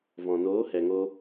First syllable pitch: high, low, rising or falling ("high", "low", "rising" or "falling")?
low